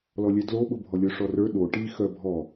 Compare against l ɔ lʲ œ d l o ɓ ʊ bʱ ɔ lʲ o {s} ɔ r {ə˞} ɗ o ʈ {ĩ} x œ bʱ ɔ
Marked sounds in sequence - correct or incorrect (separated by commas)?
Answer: incorrect, correct, incorrect